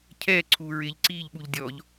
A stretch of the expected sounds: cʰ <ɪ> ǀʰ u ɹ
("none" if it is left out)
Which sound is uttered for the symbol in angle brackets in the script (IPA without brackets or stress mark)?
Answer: ɛ